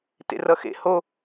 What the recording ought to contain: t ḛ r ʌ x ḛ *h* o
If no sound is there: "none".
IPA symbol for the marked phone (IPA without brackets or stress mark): h